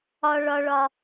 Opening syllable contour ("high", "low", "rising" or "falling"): high